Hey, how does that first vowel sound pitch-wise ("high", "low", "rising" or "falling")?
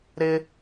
high